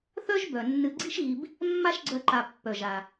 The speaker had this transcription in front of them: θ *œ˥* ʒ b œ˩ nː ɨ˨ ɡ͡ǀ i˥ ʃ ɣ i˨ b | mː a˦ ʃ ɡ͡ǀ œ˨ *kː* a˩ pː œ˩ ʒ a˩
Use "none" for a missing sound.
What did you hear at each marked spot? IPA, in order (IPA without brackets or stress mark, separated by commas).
œ˥, ǃ